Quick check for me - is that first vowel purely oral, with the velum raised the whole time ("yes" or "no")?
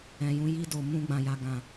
no